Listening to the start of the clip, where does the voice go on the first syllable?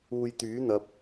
low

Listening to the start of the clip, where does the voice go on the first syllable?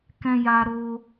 high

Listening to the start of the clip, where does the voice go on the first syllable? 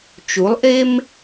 rising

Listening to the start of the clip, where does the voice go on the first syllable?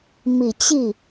low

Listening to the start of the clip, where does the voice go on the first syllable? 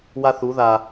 high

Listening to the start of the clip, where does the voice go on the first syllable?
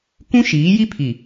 high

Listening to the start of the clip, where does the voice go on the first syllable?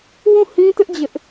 falling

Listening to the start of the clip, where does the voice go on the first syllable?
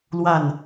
falling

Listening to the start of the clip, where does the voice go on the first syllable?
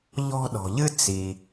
high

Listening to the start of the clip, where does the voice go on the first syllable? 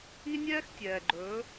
high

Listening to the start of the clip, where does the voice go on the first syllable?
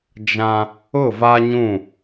high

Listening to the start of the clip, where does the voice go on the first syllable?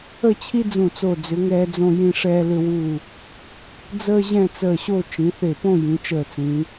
falling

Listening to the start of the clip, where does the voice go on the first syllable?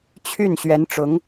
falling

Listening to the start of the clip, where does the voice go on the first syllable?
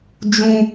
high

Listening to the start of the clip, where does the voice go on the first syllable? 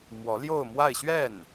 rising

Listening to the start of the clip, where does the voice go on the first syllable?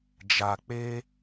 low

